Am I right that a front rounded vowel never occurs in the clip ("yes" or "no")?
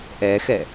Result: yes